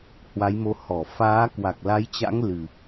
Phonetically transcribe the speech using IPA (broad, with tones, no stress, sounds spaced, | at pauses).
h w a˨˦ j m o˨˦ h ɔ˧˩ f aː˨˦ k w a˨˩ k̚ l a˨˦ j t͡ɕ a̰˧˥ ŋ l ɨ˨˩